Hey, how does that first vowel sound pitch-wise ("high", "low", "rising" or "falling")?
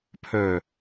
low